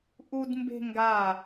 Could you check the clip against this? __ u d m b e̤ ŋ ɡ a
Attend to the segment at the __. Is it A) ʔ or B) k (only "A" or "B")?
A